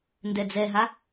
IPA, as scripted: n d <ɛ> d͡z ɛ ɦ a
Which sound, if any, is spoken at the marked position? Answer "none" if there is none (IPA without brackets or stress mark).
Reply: ɛ